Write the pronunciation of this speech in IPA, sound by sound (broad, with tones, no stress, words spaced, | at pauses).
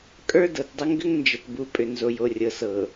kʼə˞˦ dɤ˨tdˤə˦ ŋɡʏ˦ŋnd͡ʒə˨tbu˨˦ pʼʏ˨nzo˨jo˨rʲɤ˨ sɤ˨